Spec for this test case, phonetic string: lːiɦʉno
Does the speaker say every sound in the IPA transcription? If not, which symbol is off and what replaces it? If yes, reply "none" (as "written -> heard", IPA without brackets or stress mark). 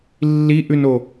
ɦ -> ʔ